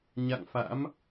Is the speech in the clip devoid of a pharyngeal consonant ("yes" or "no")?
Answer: yes